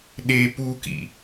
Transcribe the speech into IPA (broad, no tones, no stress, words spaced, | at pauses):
ɗe pukḭ